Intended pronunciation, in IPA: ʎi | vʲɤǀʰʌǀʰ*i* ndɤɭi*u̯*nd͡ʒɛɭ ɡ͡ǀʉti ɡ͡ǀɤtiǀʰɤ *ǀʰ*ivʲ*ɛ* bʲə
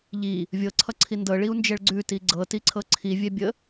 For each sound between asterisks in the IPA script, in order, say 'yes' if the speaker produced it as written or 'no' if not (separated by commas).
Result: yes, yes, yes, yes